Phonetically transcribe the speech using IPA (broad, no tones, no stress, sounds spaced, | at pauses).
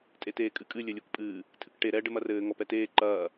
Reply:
tʼ e t eː kʼ ɨ kʼ ɨ lʲ ɘ lʲ u k pʼ ɨː | tʰ ɨ k ʈ e ɾ ɛ ɖ ɘ m ɐ r ɘː ŋ ɔ p ɛ t eː ǃ ɐː